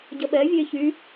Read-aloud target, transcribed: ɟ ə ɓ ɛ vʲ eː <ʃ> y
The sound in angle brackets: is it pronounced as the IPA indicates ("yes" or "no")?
no